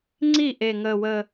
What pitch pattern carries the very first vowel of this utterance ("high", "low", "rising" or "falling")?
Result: falling